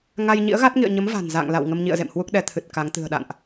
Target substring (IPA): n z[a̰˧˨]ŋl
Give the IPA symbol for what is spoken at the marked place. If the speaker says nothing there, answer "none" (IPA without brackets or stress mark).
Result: a̰˧˨